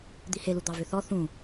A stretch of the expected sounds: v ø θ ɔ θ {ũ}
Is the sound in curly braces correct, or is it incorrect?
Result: correct